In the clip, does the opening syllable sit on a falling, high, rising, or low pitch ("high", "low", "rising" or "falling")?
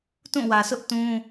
falling